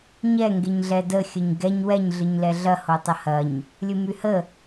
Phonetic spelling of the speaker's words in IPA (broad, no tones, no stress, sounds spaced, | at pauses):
ɲ ɛ ŋ ɡ e ɲ ɮ ɛ d ə xʲ ə ɲ ɡ ɛ ɲ w ɛ ɲ ɮ ɨ ɲ l ɛ ɮ ɐ h o tˤ ə h ɐ ɲ | lʲ ɨ m y h ə